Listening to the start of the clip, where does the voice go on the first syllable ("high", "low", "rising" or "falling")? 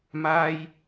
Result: high